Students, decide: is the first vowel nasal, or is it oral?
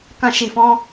nasal